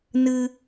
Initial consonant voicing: voiced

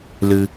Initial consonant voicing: voiced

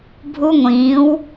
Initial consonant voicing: voiced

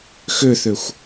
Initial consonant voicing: voiceless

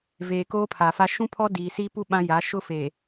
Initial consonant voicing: voiced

